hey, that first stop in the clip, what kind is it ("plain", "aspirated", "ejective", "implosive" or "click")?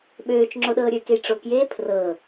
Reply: implosive